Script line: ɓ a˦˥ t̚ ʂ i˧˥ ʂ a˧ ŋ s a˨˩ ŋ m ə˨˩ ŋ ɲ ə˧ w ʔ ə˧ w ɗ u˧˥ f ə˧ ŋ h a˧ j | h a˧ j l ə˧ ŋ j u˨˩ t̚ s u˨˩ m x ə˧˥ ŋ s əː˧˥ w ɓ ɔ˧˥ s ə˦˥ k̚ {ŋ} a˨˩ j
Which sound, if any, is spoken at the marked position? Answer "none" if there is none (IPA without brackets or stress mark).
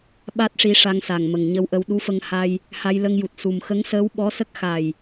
x